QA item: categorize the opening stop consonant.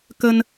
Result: plain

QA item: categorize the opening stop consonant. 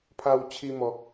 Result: aspirated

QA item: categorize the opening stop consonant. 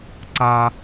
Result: click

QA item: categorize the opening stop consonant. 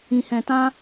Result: plain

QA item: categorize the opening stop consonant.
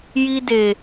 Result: plain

